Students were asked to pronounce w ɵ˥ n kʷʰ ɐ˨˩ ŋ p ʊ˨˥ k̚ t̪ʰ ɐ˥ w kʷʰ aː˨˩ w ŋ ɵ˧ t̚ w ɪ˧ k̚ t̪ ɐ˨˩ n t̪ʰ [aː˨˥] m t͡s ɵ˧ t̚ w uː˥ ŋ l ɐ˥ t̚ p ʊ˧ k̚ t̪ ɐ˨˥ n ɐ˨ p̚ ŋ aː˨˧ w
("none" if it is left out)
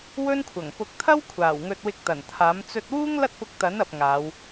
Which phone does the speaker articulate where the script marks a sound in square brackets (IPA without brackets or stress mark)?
aː˨˥